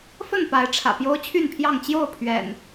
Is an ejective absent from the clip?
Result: yes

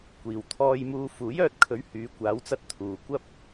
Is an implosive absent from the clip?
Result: yes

